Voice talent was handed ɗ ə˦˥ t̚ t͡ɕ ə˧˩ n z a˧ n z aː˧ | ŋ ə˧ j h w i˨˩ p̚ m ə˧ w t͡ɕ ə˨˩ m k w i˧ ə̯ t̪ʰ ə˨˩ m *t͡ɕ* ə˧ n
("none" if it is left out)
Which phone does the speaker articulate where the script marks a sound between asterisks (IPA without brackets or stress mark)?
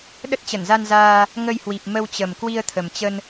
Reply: t͡ɕ